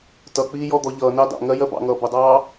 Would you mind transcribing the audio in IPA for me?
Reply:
t ʌ k͡p iː j ɔ d̪ ɔ ʎ ʌː n ɑ d ɑ̰ ŋ ɜ j ɜ b ɑ̰ ŋ ʌː b ə dˤ ɑː

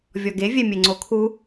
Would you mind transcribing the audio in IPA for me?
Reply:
vʲ ɔ ɡ e vʲ ɛ mʲ e ŋ͡ǀ o kʰ u

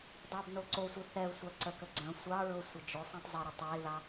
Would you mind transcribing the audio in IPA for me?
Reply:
dˤ ɑ b n o ǀ o sʷ i θ ɛ u̯ sʷ æ ǀ ə k ə ɡ͡ǀ ə̃ sʷ ɑ ɹ ʊ sʷ ə d͡ʒ ʊ sˤ ĩ tˤ zˤ ə ɾ ə tˤ æ i̯ ð ɑ

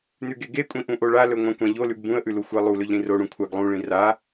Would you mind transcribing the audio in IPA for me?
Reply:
n ʉ ɡ e ɡ e kʷʼ ĩ ʔ ũ ʔ o ɭ a l ɵ ŋʷ ã kʷ ã ʎ o l ʉ ɡ b ũ ə̯ ʔ ʉ l u xʷ e lˠ u l ɵ ʎ ɾ ĩ r o ɽ ũ kʷʰ a ɡ lˠ ũ ɭ ĩ r a

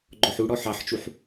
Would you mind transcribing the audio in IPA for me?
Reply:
ɡ͡ǃ ɔ ħ u ɽ ɔ ħ ɑ ħ t͡ʃ u ħ

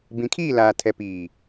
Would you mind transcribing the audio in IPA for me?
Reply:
b ĩ˨ kʰ iː˦˨ l aː˨ tʰ ɛ˨ p iː˨

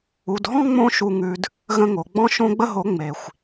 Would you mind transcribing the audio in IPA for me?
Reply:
u˨ d ɦ ɔ̃˦ ŋ͡m õ˦ ʃ u˧ ŋ ʉ˧ d | ɣ ə̃˧ ŋ o˨ ɡ͡b ɔ̃˧ ʃ õ˧ ɡ͡b ə˧ ɦ o˨˦ ŋ͡m e˨ xʷ

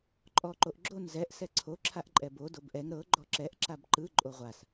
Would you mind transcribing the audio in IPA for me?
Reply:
ǃʼ ɔ ǃ o ʔ ɡ͡ǁ o n z ɛ ʔ s ɛ ǀʰ o ǁʰ a ʔ ǃʼ ɛ b o d o b ʔ ɛ ŋ ɾ ɤ ɡ͡ǃ ɔ ǁ ɛ ʔ ǁ a b ǃ ɯ ǃʼ o ʁʷ a s

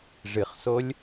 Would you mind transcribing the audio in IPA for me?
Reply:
ʐ ɨ χ s o lʲ

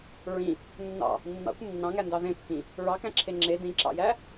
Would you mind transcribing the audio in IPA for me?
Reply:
ɹ ĩ | nː ɑ̰ | nː ɑ̰ kʷ nː ɑ̃ ŋ æ n d ɑ ð ẽ pː ĩ | ɹ ɑ k æ̃ ǁʰ e ŋ͡ǁ e d ĩ ǁ ɑ̰ j æ

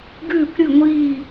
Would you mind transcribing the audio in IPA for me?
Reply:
ɡ ʉː˦˨ kʷ ɾʲ ɨ˦˨ ŋʷ iː˦˨

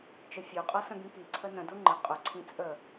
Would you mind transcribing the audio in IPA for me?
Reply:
t͡ʃ ə fʲ o qʼ ɤ s ə̃ ɡ ĩ k i ǀʰ ə n ə̃ d u ŋ͡ǃ ə̃ qʼ ʊ ǀʰ ĩ t͡sʼ ə

